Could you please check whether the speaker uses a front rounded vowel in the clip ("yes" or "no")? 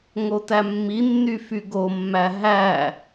yes